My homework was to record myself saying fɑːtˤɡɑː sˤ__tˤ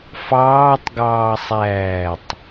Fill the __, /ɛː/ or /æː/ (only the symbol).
æː